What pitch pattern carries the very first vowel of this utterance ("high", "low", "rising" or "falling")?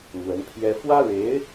rising